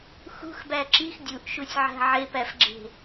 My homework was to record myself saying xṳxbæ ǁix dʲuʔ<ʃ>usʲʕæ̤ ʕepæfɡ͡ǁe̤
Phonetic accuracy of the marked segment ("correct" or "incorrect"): correct